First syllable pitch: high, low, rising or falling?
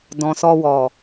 low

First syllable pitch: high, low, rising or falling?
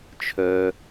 low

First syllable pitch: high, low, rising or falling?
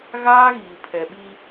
high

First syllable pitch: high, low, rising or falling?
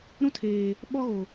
high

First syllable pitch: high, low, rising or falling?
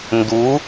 rising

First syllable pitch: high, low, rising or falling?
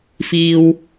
low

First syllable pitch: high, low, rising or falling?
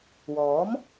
rising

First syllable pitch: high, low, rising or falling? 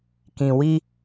low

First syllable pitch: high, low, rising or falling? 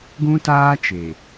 high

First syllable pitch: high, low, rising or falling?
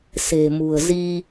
low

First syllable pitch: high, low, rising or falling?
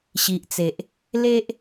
low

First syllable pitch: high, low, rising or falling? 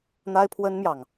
high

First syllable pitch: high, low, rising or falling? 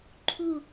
falling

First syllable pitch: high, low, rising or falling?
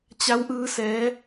rising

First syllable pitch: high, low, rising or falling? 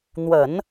low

